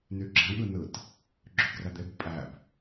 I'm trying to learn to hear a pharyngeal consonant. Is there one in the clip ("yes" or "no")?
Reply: no